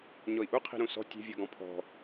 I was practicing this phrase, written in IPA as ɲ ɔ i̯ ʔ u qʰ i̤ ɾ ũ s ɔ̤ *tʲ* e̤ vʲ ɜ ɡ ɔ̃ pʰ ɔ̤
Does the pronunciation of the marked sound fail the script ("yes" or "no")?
no